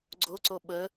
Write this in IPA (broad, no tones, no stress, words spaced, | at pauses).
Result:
ɡ͡ǀoǀo ɓə